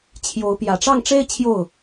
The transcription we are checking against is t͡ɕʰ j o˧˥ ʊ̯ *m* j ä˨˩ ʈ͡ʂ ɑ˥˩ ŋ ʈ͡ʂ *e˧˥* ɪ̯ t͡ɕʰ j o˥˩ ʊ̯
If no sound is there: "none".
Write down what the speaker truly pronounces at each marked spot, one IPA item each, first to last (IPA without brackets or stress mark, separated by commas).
p, e˥